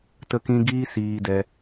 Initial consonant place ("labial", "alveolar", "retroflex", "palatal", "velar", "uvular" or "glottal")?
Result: alveolar